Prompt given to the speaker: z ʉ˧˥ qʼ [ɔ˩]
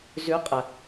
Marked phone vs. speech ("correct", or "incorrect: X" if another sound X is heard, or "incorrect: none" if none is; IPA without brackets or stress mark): incorrect: ə˩